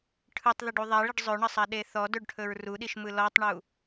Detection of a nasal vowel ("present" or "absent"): absent